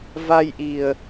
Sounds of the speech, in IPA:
v a˧ j ʔ i˨˩ ə̯

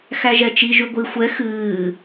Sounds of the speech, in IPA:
x æ ʒ ɛ t͡ʃ i ʒ y ɡʷ i xʷ ɛ x ɨː

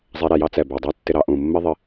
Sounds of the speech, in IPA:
zˤ ɛ˧ ɾ ɛ˩ j ɑ˥ t͡s ɛ˩ b ɜ˩ dˤ ɜ˥ tː ɪ˧ ɾ ɑ˧ ʔ ũ˩ mː ɪ˥ ðˤ ɪ˧

